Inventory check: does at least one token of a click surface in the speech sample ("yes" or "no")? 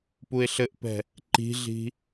yes